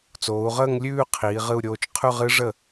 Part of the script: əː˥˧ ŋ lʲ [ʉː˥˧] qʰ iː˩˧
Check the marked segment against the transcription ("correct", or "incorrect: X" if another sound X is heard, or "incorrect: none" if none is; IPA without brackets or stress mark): correct